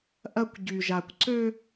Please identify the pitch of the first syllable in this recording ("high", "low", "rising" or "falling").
high